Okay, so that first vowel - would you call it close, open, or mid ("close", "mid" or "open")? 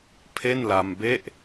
mid